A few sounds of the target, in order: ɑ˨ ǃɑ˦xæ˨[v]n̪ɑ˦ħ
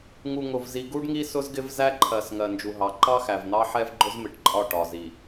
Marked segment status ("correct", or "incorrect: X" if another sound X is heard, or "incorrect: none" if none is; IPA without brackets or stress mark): correct